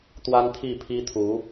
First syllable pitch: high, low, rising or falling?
high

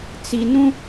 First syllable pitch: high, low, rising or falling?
high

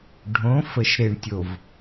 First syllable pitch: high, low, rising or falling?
rising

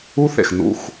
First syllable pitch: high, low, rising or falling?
high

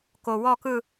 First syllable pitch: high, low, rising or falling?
low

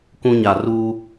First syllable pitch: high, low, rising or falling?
high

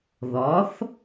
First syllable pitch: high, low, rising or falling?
rising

